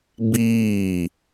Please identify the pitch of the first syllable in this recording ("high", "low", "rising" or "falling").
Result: falling